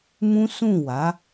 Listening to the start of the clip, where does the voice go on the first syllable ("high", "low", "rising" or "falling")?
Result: high